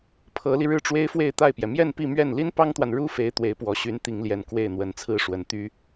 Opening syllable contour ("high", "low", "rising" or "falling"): rising